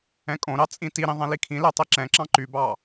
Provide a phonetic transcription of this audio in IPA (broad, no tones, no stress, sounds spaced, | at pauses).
ɛ̃ kʼ õ ɾ ɑ t͡sʼ ĩ t i ɾ ĩ ðˤ ɛ̃ l i kʰ ĩ l ɛ tˤ i ǁ ɛ̃ ǁ ɑ̃ ǃ y b ɑ